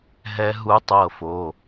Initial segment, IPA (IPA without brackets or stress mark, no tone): ɦ